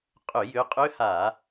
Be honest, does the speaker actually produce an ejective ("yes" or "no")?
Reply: yes